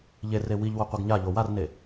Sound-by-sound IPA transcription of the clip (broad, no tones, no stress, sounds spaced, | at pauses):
ʎ e r e w i ʎ w o qʷ ɨ ɡ ɲ a ʎ o w a r n e